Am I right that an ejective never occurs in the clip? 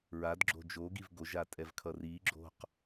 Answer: no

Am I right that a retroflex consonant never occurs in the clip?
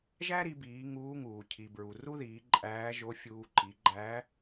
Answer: yes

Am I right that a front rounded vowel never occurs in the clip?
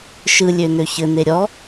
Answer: no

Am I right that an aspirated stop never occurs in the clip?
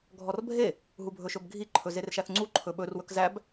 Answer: no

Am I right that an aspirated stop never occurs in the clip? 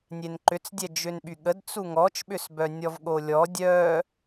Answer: yes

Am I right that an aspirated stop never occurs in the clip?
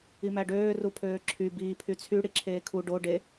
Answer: no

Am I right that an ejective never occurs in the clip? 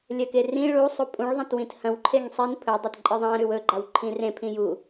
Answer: no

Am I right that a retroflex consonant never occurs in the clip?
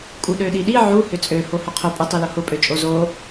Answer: yes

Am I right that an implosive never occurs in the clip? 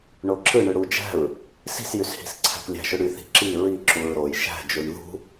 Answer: yes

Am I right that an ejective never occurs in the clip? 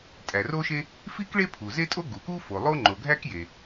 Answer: no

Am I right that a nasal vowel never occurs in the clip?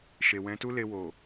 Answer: no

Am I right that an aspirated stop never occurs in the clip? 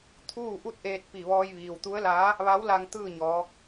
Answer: no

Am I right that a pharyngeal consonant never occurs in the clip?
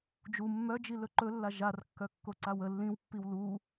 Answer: yes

